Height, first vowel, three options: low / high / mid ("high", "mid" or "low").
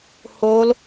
mid